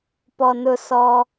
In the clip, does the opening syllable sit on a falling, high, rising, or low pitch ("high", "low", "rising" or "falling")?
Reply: low